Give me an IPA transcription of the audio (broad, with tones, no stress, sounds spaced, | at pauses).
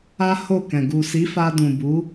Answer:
a˦ h o˦˨ k ɛ̃˨ ɡ u˨ s i˨˦ f a˧ d ũ˨ b u˨˦